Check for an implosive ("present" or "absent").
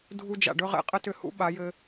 present